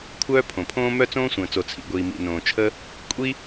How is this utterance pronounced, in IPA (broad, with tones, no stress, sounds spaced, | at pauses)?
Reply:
kʷʰ œː˥ pʰ õ˩ pʰ õː˥ m œ˥ t͡s õː˥ sʷ ə̃ː˩ t͡s o˩ t͡sʰ ḭ˩ ɡʷ iː˩ m ḭ˩ n õː˩ t͡ʃʰ ə˥ | kʷʼ i˥